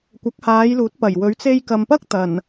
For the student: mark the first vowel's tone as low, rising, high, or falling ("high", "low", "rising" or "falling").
rising